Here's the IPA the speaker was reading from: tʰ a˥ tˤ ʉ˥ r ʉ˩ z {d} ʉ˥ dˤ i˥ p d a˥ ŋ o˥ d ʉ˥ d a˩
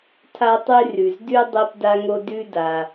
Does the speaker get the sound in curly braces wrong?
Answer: no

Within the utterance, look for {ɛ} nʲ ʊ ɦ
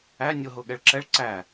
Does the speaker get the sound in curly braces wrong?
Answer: yes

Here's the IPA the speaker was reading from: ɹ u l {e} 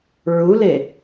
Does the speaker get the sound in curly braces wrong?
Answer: no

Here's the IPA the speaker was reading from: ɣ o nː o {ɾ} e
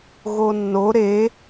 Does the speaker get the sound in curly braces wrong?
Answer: no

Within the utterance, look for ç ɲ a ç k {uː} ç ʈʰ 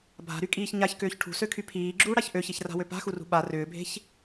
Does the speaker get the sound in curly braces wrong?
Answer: yes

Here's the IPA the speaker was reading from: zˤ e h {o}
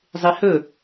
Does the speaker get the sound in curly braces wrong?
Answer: yes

